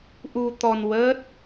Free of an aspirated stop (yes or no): yes